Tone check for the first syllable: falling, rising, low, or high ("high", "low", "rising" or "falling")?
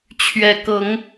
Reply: low